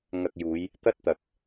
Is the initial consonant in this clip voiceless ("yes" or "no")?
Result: no